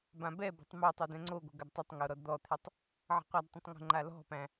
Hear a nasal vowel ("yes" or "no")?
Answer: yes